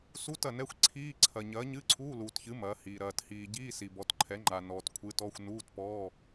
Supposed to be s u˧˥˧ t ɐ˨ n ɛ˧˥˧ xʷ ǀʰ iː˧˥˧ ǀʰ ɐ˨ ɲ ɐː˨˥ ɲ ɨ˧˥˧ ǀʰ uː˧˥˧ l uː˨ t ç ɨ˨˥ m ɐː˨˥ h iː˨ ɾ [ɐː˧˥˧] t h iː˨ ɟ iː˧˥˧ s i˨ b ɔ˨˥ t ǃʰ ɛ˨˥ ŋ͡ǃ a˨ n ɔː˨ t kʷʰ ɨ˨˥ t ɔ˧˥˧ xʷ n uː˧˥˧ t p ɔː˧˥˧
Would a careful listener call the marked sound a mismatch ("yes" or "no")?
yes